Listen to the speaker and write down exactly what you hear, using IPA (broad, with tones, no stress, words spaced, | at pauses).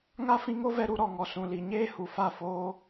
ŋa˦fĩ˧ŋo˦vɛ˧ ɾu˧ɾɔ˨ŋɔ˨ sũ˨li˨ɲeː˦ hu˨fa˦˨foː˦